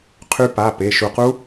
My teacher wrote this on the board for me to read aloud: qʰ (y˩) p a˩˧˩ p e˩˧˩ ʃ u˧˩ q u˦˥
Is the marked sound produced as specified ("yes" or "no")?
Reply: no